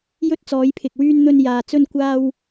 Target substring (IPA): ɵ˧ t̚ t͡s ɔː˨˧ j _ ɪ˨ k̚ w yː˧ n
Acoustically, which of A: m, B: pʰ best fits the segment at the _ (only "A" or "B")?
B